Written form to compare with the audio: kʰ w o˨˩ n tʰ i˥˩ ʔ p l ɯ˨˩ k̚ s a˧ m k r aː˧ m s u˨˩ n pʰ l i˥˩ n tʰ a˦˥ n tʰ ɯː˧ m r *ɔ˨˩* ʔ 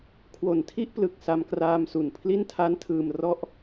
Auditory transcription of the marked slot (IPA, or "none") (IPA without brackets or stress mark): ɔ˥˩